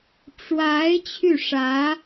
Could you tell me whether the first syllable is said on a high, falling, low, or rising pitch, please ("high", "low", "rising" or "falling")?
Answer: rising